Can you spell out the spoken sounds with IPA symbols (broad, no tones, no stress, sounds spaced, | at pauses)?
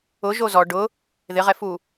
ʊ ʒ o z ɔ ɖ ʊ | ð ɪ ʁ ɛ f u